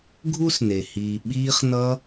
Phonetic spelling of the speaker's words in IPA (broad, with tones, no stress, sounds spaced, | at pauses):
ɡʱ u˥ s n e˩ h iː˨ ɓ iː˦ χ n ʌ˦